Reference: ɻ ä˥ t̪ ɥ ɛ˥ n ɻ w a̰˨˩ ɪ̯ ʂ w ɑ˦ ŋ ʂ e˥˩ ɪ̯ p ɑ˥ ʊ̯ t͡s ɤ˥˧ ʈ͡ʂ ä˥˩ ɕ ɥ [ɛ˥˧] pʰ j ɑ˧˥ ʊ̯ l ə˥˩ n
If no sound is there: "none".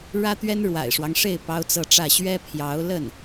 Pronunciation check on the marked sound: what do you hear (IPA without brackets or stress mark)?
ɛ˥